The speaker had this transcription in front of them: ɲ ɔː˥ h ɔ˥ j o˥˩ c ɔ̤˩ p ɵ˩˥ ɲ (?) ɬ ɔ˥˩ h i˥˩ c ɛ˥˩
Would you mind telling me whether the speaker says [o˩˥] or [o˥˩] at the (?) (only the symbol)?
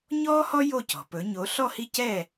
o˩˥